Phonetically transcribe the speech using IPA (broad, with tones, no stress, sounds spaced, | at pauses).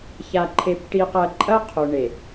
ç a˨ ǃʰ e˨ p ʈ i˨ q ɐ˨ ǃʼ ɐ˦ qʰ o˨ ɳ e˨